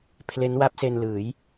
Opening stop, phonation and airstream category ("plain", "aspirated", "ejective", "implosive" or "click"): aspirated